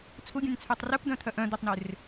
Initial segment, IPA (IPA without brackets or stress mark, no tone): t͡sʰ